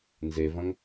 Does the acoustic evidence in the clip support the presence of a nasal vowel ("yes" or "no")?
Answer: yes